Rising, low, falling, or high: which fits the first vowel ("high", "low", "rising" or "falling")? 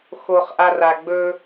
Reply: high